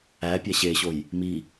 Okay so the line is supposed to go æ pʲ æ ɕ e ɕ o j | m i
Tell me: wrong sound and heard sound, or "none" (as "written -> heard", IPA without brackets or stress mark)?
none